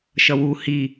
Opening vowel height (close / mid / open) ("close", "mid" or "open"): mid